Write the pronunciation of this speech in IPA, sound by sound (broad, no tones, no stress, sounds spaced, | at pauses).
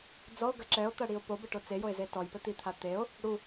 d͡z ɔ o̯ ɡ ɐ ǁ ɛ o̯ t̪ ɐ ɽ i o̯ p o b ɘ ʈ o t͡s e j o e̯ z e t ɔ j p ɘ t̪ i t̪ʰ a t̪ e o̯ | ɽ u